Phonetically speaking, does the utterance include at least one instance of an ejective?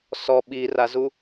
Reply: no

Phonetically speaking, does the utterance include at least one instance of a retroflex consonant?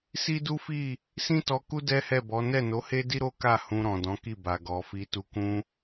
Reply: no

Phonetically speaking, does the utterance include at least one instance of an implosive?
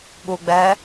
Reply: yes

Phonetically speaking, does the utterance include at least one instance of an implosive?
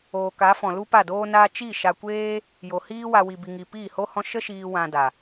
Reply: no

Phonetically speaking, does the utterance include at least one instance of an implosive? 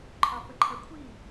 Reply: no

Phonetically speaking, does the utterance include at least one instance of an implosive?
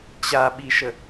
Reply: yes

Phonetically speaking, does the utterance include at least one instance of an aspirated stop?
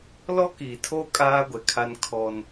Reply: yes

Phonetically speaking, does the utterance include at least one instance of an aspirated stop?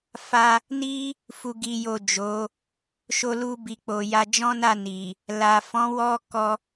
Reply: no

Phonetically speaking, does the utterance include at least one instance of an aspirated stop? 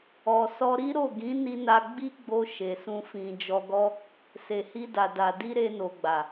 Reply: no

